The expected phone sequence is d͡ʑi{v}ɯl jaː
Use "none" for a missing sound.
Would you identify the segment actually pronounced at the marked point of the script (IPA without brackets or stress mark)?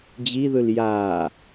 ð